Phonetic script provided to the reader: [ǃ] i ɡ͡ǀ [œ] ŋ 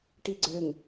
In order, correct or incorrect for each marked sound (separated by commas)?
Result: incorrect, incorrect